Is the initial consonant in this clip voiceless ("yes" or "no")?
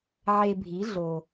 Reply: no